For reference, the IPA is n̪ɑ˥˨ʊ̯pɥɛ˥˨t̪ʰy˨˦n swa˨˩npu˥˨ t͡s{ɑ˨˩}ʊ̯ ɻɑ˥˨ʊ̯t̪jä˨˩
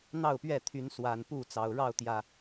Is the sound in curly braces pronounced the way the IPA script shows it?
yes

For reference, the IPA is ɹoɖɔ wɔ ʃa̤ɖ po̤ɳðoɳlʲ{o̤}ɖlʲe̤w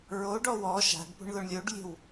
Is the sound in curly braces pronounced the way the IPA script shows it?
no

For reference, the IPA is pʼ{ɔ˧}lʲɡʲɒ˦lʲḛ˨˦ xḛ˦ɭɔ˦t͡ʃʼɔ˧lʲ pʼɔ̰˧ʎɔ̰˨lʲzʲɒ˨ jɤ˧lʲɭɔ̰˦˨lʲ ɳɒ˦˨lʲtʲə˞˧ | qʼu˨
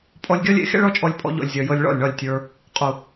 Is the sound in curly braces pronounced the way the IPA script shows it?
yes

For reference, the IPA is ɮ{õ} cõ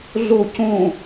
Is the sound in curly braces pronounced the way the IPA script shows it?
no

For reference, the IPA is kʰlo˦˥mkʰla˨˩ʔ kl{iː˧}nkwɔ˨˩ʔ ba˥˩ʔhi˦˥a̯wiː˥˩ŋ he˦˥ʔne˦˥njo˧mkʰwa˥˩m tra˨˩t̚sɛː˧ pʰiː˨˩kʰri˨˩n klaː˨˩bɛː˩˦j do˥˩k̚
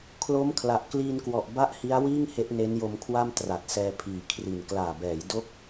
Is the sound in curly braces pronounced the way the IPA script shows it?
yes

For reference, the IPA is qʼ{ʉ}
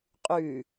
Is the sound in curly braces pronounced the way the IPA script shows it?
yes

